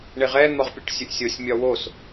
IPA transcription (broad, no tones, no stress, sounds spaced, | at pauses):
ɳ e ʁ ɛ n̪ ɒ ʁ pʲ u ʈ sʲ ɵ ʔ sʲ o sʲ mʲ ɒ w o s